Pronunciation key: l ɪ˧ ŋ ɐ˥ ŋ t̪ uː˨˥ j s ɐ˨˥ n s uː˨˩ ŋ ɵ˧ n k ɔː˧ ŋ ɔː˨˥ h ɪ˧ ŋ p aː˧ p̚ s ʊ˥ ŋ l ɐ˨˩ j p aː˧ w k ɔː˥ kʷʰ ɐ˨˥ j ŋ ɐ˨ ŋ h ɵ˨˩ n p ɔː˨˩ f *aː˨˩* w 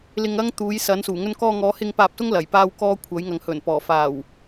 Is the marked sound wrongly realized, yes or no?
no